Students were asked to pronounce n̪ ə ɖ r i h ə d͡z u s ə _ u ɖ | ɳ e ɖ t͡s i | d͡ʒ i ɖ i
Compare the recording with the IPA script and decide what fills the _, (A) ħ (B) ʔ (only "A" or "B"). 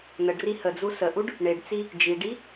B